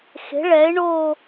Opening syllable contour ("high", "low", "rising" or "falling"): rising